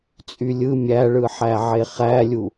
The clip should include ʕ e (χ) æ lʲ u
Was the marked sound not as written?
no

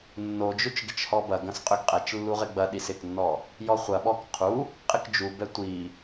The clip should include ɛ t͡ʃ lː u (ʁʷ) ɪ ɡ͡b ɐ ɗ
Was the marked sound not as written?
yes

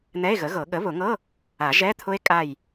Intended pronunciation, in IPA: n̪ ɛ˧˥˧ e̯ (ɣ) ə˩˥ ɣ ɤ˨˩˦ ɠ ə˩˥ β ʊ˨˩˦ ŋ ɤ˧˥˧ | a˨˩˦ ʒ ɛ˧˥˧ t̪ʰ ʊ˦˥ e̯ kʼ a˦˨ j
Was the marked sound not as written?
no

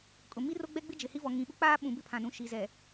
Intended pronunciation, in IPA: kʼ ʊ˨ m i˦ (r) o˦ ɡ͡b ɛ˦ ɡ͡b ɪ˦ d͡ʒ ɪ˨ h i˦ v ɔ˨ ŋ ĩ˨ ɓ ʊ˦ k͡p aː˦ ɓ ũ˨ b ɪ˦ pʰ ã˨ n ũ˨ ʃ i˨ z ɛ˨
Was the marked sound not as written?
no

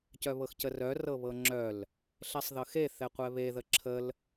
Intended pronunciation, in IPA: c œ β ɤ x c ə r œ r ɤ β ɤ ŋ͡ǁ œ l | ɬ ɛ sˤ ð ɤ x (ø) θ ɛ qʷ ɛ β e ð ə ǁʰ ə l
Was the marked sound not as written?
yes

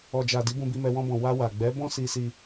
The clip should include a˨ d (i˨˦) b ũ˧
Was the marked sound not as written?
no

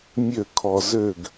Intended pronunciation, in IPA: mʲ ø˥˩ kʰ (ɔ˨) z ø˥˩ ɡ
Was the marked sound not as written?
no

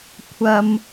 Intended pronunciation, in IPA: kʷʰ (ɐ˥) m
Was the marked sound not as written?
no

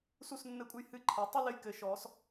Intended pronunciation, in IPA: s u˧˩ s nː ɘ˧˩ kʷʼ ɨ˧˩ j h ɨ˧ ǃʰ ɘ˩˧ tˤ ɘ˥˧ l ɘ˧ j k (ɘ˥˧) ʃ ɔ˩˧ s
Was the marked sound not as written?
yes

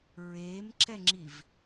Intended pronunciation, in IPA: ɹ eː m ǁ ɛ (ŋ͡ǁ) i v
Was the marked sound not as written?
no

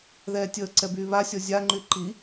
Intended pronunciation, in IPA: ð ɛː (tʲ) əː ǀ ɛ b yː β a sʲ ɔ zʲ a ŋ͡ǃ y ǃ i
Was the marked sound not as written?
no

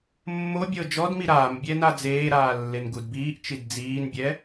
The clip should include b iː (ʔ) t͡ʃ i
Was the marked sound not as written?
no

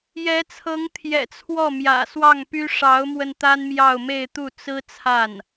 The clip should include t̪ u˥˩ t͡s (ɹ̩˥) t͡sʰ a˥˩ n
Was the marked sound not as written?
no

